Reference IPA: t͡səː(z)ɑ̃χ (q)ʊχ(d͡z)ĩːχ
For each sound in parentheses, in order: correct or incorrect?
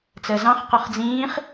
correct, correct, correct

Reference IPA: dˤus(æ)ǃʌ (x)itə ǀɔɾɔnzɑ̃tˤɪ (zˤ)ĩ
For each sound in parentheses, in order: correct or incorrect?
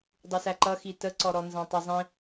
correct, correct, correct

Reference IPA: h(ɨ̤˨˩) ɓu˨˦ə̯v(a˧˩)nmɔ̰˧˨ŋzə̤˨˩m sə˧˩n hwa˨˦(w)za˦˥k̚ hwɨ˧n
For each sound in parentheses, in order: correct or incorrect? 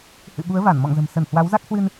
incorrect: ɨ̰˧˨, correct, correct

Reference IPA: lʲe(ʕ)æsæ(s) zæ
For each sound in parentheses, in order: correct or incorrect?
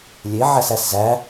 correct, correct

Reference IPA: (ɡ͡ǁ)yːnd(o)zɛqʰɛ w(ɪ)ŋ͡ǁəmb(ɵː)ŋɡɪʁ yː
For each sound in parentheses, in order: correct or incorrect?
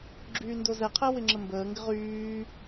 correct, correct, correct, incorrect: əː

